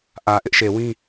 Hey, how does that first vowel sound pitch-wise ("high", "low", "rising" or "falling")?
low